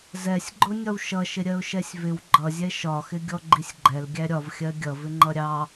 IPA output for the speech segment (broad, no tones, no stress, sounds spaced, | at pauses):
z ɛ sʲ ɡ͡ǃ ʊ nʲ ɒ w ʃ ʌ ʃ ɪ ɾʲ ɜ ʊ̯ ʃ ɛ sʲ v ɪ w ɡ͡ǃ ʌ zʲ ɛ ʃ ɒ x ɪ ɡʲ ɔ ɡ͡ǃ i sʲ ɡ͡ǃ ɛ l ɡʲ æ ɾʲ ɒ v xʲ ɜ ɡʲ ʌ v ɪ ŋ͡ǃ ʌ ɾʲ ɑ